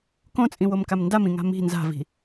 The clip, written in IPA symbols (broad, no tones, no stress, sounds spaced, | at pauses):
k õ t͡sʼ ĩ w o m k a m n d a m ĩ ŋ a̤ m i̤ n z a̤ v i̤